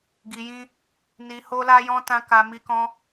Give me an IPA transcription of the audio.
ɡi˧jĩ˦ | ni˧ ho˦la˦jɔ̃˦ tã˦ka˧ mi˧ kɔ̃˧

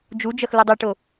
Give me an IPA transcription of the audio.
d͡ʒud͡ʒɐx ludˤøʈo

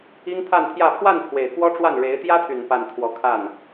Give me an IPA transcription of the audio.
i˥ŋt̪ʰa˥˧nt̪ʰjä˥˧ pʰwa˥˩n pʰwe˨˩ɪ̯kwɔ˥ʈ͡ʂwa˥˩n ɻe˧˥ɪ̯ t̪jä˥t̪ʰy˨˩n pa˥˧nt̪ʰwɔ˥˧ kʰa˥˩n

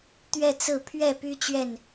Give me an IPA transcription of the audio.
t̪ɥɛ˥˨t͡sɹ̩˥˨ pʰɥɛ˥˨py˦ t͡ɕɥɛ˥˨n

